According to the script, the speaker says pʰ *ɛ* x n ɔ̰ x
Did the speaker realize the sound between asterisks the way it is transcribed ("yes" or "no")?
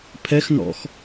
yes